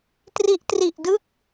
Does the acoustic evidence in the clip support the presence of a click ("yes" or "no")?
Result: no